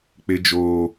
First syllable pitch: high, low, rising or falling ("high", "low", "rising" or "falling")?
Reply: high